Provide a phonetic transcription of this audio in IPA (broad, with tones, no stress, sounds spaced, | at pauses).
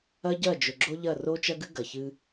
ɐ˦ ɟ ɐ˦˨ d͡ʒ ɵ˨ ɡ͡ǁ o˦ ʎ ɐ˦˨ r o˦ t͡ʃ ɐ˦ ɡ ɨ˦ ɡ ɐ˨ ç ɨ˦